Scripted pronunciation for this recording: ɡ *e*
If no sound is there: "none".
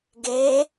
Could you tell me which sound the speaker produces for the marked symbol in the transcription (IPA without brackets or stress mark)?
e